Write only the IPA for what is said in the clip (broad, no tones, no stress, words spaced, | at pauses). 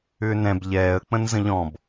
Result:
ʏːnɛ̃b ʎɛːə̯ k͡pə̃nzə̃ʎɔ̃b